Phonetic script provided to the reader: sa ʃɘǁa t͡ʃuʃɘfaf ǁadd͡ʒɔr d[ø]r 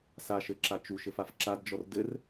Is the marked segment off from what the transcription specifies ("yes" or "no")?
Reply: yes